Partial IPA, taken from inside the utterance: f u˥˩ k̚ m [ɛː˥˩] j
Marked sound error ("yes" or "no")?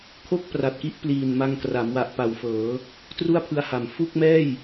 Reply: no